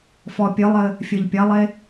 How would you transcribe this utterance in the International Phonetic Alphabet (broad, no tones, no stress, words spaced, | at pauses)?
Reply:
fɔpʲɨlˠɘ | fʲɘʎpʲɐlˠe